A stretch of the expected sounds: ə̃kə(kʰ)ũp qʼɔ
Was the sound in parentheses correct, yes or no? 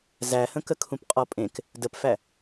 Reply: yes